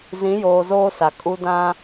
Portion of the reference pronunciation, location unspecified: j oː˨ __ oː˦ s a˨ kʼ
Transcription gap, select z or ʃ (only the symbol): z